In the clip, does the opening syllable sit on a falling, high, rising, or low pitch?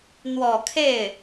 low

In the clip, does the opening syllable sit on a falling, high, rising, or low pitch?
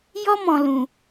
high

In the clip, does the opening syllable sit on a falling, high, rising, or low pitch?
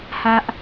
high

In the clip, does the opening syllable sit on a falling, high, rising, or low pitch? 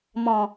low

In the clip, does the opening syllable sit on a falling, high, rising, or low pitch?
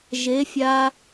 rising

